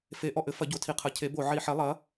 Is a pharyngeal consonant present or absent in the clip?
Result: present